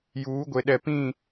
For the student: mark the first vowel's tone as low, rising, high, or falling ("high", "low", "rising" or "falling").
rising